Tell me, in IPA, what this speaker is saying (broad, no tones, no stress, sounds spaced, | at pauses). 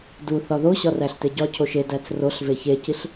d u θ ɒ ð o ɕ ɒ r æ ɬ t e ɟ ɒ cʰ o ʃ e d æ t͡s r o ɬ v e ç e c i ɬ